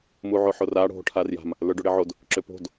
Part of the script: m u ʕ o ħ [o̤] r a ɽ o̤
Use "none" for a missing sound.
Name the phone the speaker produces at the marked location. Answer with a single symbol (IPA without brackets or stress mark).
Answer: o